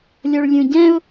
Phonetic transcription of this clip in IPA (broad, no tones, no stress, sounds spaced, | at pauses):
lʲ ɔ ɭ lʲ ũ ɟ ɛ̃ ʊ̯